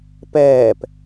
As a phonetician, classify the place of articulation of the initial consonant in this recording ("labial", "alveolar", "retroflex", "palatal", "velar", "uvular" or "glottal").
labial